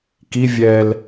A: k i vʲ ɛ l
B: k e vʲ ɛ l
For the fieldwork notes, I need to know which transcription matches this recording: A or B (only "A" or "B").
A